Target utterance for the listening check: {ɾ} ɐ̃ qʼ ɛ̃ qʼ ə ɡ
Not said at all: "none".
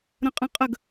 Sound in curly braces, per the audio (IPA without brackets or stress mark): ɾ